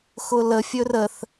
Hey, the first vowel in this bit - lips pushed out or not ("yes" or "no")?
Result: yes